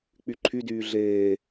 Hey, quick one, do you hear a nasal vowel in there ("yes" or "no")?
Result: no